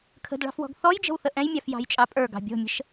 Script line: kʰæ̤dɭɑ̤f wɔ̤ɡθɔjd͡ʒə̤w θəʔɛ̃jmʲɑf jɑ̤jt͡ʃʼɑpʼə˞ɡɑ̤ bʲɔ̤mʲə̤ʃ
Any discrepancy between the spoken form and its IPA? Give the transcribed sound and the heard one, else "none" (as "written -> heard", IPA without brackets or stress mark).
æ̤ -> ə̤